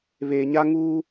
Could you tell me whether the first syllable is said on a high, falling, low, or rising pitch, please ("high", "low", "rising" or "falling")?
low